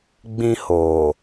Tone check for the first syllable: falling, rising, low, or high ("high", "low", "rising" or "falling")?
high